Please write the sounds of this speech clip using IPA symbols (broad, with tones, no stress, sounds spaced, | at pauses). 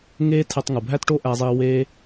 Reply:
ŋ eː˥ tʰ e˧ tˤ ŋ u˩ bʱ æ˥ t ʈ o˥ ʔ æ˧ zˤ iː˧ w eː˥